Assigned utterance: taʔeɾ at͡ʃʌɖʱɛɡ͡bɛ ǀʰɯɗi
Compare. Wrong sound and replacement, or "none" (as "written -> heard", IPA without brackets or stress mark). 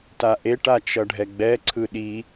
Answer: ɾ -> ʈ